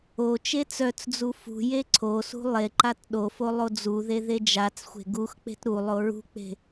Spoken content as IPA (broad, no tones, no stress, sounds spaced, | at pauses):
o t͡ʃ e t͡s œ t͡s d͡z u f ṳ j e ǀʰ o s ṳ lˠ e ǃ a t ɗ o f o lˠ o d͡z u ð e ð e d͡ʒ a t͡s xʷ e̤ ɡ u x k͡p e̤ t ɾ u lˠ o ɹ ṳ k͡p e̤